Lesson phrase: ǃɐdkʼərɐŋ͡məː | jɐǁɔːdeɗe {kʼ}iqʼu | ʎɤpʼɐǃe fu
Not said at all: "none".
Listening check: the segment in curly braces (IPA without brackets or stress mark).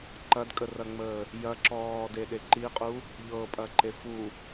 ǃ